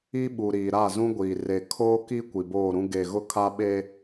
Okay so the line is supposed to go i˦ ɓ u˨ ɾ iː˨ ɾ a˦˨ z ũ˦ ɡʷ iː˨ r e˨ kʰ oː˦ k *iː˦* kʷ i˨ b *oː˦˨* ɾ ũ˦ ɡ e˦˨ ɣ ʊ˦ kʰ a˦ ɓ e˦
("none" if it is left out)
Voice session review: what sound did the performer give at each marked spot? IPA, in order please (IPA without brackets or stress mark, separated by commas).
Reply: i˦, oː˦˨